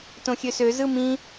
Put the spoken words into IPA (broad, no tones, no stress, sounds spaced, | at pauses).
t õ xʲ ø s ø z ɯ m ĩ